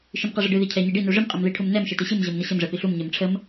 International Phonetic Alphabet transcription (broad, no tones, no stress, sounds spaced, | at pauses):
ʃ i m q ɛ ʐ ə ɖ ɨ ð i cʰ ɛ ɲ i ɖ i n u ʐ ɨ m qʼ e m ð i ʈʰ u m n ɛ m ʃ e t i ɕ ɨ m ʑ ɤ m n ə ɕ ə m ʐ ɛ p i ɬ u m ɲ ɛ m ʈ͡ʂʰ ə m